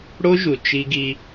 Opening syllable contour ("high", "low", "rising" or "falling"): high